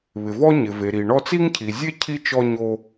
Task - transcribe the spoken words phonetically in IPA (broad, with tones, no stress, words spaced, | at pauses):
βɪ˨vɔ˥ ɲɪ˨ve˨ɾi˨ ɳɔ˦t͡si˥ŋcʰi˨ zʲe˥ cʰi˥t͡ʃɔ˦ɲo˦